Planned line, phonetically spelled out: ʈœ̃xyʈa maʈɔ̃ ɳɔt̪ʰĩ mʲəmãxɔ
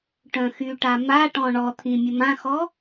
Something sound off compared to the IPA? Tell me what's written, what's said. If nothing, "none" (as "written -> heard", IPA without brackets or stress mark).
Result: none